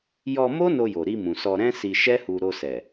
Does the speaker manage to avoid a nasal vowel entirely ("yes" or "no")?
no